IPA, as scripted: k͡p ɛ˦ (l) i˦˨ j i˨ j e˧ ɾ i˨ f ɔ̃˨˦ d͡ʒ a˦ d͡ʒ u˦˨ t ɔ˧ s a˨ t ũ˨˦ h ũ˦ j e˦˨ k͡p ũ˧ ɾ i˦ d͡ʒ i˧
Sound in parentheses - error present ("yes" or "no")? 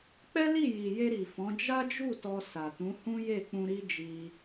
no